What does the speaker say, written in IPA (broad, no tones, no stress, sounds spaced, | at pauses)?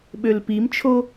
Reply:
ɓ ø l p i m t͡ʃʰ o